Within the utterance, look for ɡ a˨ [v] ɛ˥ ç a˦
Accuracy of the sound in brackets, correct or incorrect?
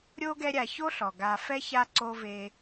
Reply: incorrect: f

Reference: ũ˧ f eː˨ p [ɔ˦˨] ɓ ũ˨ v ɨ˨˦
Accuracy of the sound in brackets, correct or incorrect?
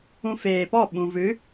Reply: correct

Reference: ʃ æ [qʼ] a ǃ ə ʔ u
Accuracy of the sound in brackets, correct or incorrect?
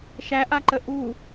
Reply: incorrect: ʔ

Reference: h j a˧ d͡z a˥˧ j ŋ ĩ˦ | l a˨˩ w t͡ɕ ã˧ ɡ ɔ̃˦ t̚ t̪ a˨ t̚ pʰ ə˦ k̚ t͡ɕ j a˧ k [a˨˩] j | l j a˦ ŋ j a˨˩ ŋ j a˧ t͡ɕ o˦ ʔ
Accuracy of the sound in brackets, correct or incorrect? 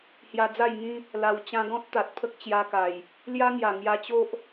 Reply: correct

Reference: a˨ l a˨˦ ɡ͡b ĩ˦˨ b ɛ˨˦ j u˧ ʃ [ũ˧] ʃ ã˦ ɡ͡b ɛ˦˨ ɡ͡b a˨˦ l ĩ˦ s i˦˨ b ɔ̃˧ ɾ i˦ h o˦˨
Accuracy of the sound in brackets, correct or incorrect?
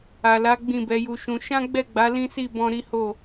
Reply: correct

